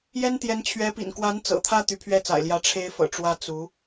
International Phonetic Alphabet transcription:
j ɛ˥ n t̪ j ɛ˧˥ n t͡ɕʰ ɥ ɛ˧˥ p ḭ˨˩ n k w a˧˥ n t͡s ɤ̰˨˩ t̪ʰ ä˥˩ t̪ y˧˥ pʰ ɥ ɛ˥˩ t͡s a̰˨˩ ɪ̯ l j ä˧˥ ʈ͡ʂʰ e˥ ɪ̯ f ɤ̰˨˩ ʈ͡ʂ w ä˥ t͡s u˧˥

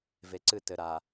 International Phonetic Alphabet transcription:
v e˨ ǀ ɨ˦˨ t ɘ˨ ɾ a˨

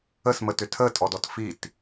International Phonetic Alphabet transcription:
ə s m ə t ʏ tʰ ə tʼ ɔ d ɔ t f i t

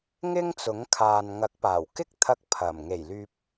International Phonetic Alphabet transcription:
ŋ ɪ˥ ŋ t͡s ʊ˨˥ ŋ kʰ aː˨ n ŋ ɐ˨˥ k̚ p aː˨˩ w k ɪ˥ k̚ t̪ʰ ɐ˧ k̚ pʰ ɐ˨˩ m ŋ e˨˩ j l yː˨ p̚

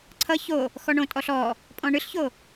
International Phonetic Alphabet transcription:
ǀʰ ʌ ç o | x ɔ ɳ õ tʼ ɔ ɬ ɔ | pʼ ɔ̃ ɳ ɨ ɬ ç o

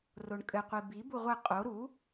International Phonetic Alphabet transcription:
r o ɳ kʼ ɘ qʷ i b i b u ʁʷ ɘ qʼ o ɾ u

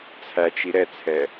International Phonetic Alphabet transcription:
t͡sʰ æ t͡ʃ i ɾ ɛ t͡sʰ ɛ

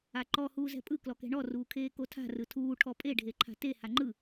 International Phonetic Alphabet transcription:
a ǃ ɔ h uː z ɛ̤ pʼ ɯ k l ɔ k ɛ̤ ɳ ɔ r uː kʰ eː k o tʰ a̤ r ɯ tʰ uː ʈʰ ɔ pʼ e ɖʱ e ǃʰ a̤ t e h a ŋ͡ǃ ɯ

